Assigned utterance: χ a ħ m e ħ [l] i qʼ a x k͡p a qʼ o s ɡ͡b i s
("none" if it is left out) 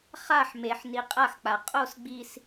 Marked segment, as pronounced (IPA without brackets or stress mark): n